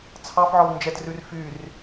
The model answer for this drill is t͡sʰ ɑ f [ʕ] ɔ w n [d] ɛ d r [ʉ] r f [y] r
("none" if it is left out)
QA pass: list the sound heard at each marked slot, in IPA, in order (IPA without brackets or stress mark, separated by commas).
ʕ, d͡ʒ, ʉ, y